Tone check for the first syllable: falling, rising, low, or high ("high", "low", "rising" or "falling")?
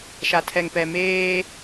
low